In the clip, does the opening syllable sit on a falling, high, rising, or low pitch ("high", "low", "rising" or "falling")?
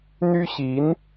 high